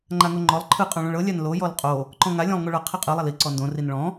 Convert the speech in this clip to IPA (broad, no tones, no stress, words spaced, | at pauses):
ŋ͡ǃaŋoŋ͡ǃɔlˠ ǃʰɯ qʼɔ̃ɭõɭɤ lʲanlo jɔlqʼo | ǃɔ̃ŋa lʲɔ̃lˠŋoɭɤ qʰiqʼɯ lˠali ǀɔndõ rinɭɔ̃